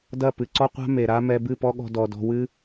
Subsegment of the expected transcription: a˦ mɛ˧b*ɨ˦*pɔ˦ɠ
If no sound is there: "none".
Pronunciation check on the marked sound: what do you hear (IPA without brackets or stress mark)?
ɨ˦˨